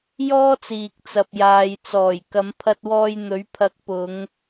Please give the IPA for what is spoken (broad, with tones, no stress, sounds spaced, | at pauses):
j ɔː˥ t͡s iː˨ k̚ t͡s ɐ˨ p̚ j aː˨ j t͡s ɔː˨˩ j k ɐ˨˧ m pʰ ɐ˧ t̚ w ɔː˧ j n̪ ɵ˨˥ ɥ pʰ ɐ˨˥ k̚ p ʊ˨˧ ŋ